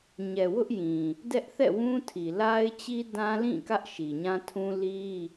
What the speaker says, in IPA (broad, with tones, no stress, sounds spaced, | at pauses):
ɲ ɛ˨ w ʊ˦ ʔ j ĩ˨ | d ɛ˦ ʔ θ ɛ̰˦˨ w ũ˦ tʰ i˨ l a˦ ɪ̯ t͡ɕ i˦ d ã˦ l ĩ˦˨ k ä˦ ʔ ʃ i˨ ɲ ã˦ tʰ ũ˦ l i˦